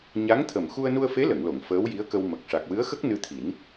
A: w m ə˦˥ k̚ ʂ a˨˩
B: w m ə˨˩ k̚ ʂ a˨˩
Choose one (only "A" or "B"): B